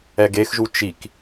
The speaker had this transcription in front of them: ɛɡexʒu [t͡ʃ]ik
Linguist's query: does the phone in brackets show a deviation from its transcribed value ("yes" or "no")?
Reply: no